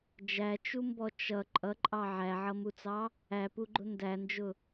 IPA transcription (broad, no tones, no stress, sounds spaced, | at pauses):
d͡ʒ æ t͡ʃ u m b ɔ t͡ʃ ʌ ǃʼ ʌ ǃʼ ɑ ʕ æ ʕ ʌ m u t͡s ɑ | æ p u ɡ͡ǃ ʊ n d æ n d͡ʒ ʊ